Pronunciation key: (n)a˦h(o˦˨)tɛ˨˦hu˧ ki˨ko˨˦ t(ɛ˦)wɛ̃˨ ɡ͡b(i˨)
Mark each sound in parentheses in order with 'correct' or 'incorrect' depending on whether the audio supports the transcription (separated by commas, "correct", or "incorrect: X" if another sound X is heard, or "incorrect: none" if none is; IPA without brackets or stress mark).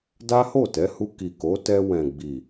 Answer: incorrect: d, correct, incorrect: ɛ˧, correct